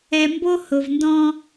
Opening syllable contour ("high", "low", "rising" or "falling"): low